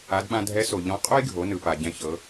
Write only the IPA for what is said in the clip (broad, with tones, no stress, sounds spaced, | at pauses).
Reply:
a˩˧ d ɓ ã˧ dʱ ɛ˧˥ s o˩ ʎ ɔ̃˧˥ qʼ o˥ j ɡʱ o˩˧ n ɯ˩ p a˩ ɟ ɛ̃˧ ç ɤ˩˧